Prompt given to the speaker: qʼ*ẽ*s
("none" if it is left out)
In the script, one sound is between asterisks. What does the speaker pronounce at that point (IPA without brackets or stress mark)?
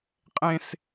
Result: ẽ